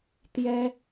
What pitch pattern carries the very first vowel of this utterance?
high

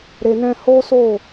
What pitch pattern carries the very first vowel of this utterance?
low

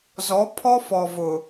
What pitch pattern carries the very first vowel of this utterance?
rising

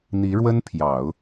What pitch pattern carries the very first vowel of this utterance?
rising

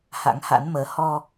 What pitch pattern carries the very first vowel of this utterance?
rising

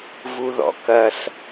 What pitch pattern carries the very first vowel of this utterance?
high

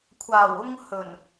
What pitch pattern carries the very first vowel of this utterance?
low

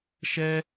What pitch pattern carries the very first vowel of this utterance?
high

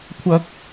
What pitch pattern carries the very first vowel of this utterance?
high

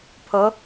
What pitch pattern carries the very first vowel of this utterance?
rising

